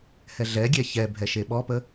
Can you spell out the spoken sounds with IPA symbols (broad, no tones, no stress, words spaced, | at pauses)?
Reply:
hɛɮɛɡʲɛ çɛ bʱɛʃeɓɔpə